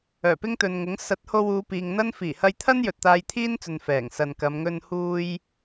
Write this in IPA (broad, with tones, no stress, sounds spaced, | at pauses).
œː˨˩ p ɪ˥ ŋ t̪ ɵ˨ n ŋ ʊ˨˥ ŋ s ɐ˨˥ t̚ h o˧ w uː˨˧ p iː˨ ŋ n̪ ɐ˥ n f iː˨˩ h ɐ˧ j t̪ʰ ɐ˥ n j ɵ˨ t̚ t̪ aː˧ j t̪ʰ iː˥ n t͡s ɵ˨ n f ɛː˨˩ ŋ s ɐ˨ n k ɐ˨˧ m ŋ ɵ˧ n h uː˧ j